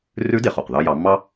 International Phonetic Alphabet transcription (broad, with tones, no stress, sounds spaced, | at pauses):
r ʉ˧˥ d e˩ χ o˩ q ð ɑ˧ j ɑ˩˧ mː ɑ˥